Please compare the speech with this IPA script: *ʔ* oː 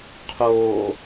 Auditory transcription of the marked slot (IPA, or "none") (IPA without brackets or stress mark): qʰ